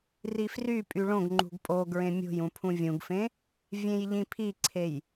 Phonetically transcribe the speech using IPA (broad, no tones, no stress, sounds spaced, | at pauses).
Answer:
r i f r y pʼ y ɭ õ ɡ ŋ͡ǃ ṳ ɡ pʼ o ɡ ɹ ẽ mʲ o̤ j ũ pʰ ũ vʲ ũ ɡ f ẽ | vʲ ẽ j ʎ ĩ pʰ i ǀʰ e j